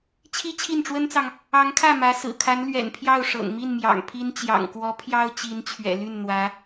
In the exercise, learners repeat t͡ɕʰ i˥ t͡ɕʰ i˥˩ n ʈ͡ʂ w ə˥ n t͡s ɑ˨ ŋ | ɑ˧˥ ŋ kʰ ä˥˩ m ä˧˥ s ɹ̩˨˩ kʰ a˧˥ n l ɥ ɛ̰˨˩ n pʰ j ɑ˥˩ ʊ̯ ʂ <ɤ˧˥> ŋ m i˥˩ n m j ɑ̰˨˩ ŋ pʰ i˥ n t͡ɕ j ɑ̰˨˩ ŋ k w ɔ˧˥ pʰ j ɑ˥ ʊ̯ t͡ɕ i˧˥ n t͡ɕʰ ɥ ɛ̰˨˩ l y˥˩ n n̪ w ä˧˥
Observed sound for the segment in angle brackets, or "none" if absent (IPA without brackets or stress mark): ɤ̰˨˩